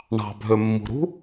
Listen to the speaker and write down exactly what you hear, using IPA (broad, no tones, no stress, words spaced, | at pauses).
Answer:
ɳɑ̤ bʱømːṳɾṳ